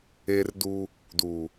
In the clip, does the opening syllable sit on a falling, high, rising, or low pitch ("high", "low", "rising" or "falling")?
high